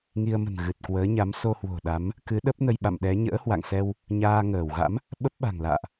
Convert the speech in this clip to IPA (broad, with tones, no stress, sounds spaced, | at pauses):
ŋ i˧ ə̯ m ə̤˨˩ n ɣ ɨ˨˩ t̚ k w əː˨˦ ɲ a˨˦ m s o˧ h w o̤˨˩ ɗ a˨˦ m | k ɨ˨˦ ɗ ə˦˥ p̚ n ə˧ j ɓ a̰˧˨ m ɗ ɛ˨˦ ɲ ə̰ː˧˥ h w a̰˧˨ ŋ s ɛ˧ w | ɲ aː˧ ŋ əː˧˩ w ɣ a̰˧˥ m | ɓ ə˦˥ p̚ ɓ a̤˨˩ ŋ l a̰ː˧˨ ʔ